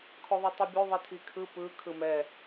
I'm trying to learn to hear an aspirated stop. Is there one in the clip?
yes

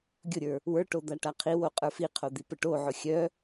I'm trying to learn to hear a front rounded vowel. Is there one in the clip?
yes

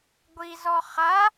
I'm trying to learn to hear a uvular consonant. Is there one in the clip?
yes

